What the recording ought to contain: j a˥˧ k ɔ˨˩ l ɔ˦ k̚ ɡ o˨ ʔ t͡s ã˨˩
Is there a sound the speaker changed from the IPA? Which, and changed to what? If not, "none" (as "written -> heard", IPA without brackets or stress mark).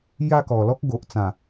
none